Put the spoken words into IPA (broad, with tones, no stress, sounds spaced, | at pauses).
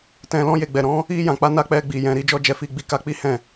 t ɛ̃˨ l ɔ̃˧ j e˨ ɡ͡b ɛ˨ ɾ ɔ̃˨˦ | i˧ j ã˨ k͡p a˨˦ n a˧ k͡p ɛ˧ ɡ͡b i˨ j ɛ̃˨ ɾ i˧ d͡ʒ ɔ˧ d͡ʒ ɛ˨ f i˧ ɡ͡b i˧ k a˧ k͡p i˦ h ɛ̃˦˨